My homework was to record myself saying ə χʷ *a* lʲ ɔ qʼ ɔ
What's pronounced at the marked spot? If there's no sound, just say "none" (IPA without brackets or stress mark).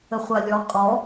a